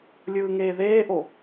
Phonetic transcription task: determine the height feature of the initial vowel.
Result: high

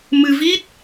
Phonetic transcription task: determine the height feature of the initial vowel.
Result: high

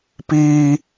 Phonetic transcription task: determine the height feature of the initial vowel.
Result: high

